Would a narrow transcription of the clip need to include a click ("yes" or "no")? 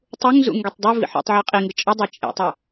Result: no